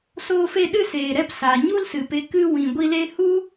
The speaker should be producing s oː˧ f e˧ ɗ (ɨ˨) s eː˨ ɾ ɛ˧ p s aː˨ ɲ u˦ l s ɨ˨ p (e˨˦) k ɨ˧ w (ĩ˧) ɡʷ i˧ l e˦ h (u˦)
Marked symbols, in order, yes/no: no, yes, no, yes

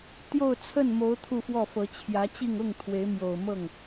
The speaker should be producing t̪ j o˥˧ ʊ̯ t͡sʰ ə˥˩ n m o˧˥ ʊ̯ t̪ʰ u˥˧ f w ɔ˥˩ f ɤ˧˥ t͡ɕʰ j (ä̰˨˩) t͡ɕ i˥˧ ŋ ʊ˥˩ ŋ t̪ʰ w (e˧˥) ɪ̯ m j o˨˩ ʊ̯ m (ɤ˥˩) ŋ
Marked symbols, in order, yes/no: no, yes, yes

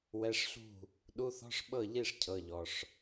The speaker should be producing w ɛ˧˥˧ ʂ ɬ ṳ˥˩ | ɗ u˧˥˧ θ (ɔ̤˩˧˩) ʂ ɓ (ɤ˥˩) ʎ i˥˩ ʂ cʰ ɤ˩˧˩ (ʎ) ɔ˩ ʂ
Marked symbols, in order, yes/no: no, yes, yes

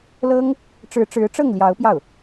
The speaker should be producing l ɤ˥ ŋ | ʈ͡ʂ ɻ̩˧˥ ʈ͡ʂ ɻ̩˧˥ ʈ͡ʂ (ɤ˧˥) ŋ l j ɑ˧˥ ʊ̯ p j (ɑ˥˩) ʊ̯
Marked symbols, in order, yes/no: no, yes

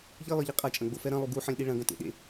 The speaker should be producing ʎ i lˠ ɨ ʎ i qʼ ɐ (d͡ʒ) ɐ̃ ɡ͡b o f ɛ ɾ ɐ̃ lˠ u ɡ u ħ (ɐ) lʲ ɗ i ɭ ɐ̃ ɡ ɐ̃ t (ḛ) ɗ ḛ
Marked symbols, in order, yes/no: no, no, yes

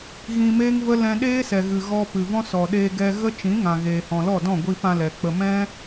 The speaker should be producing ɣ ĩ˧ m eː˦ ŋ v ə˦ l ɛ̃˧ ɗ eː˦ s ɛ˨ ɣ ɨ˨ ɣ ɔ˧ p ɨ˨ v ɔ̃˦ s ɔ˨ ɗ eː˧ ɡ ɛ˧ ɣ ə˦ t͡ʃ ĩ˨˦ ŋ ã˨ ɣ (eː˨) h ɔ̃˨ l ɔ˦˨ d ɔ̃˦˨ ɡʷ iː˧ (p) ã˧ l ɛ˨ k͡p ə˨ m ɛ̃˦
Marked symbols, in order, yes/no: yes, yes

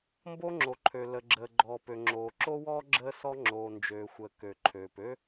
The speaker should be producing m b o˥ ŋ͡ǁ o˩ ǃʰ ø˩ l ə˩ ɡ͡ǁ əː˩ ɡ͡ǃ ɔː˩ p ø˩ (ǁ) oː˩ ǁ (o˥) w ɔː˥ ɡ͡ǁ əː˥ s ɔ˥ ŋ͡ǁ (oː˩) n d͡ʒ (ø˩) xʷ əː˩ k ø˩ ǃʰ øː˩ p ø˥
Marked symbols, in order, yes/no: no, yes, yes, no

